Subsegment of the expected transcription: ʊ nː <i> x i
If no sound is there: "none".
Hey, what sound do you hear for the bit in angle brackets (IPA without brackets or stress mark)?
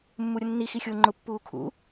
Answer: i